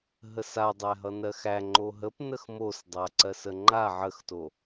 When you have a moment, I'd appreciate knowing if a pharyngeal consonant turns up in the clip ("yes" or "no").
yes